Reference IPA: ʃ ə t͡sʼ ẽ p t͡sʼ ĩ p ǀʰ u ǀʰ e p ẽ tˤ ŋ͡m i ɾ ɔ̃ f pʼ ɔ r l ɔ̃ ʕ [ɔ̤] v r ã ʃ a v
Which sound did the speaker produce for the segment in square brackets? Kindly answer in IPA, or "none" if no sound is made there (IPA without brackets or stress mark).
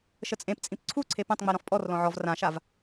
ɔ